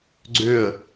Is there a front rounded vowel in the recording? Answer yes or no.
yes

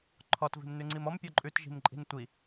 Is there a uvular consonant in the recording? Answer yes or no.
no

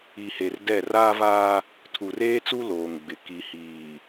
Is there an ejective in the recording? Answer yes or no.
no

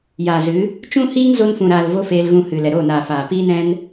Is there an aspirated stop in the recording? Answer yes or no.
no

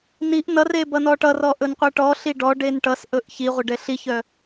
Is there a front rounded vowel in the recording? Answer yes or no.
yes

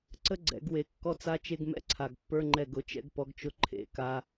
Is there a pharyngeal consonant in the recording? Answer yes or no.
no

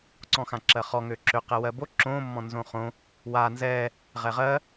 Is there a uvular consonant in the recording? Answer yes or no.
yes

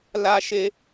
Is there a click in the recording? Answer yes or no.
no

